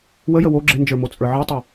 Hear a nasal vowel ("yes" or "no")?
no